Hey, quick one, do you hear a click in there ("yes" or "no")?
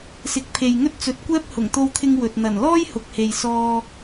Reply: no